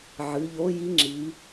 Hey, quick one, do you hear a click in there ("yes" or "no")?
yes